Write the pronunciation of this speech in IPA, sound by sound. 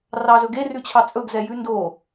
rɑzɵɡe rʉt͡ɕʰɑt͡sʼɵɡ zɛjʉndo

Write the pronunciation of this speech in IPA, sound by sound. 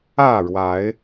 ä˥˨ɻwa˨˦ɪ̯

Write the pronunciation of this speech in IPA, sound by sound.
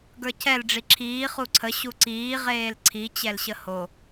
ɡə˞cʰɛl ɖ͡ʐiǁʰiː χuǀʰə ɕuǀiː ʁeːlǀʰi t͡ɕɛlɕəho

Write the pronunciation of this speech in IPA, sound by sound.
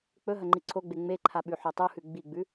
k͡pɵ ɦɐŋ͡ǃiǀʰoɡ͡be ŋ͡meǃʰa ɓʉħotˤuhʉ ɡ͡biɡ͡bʉ

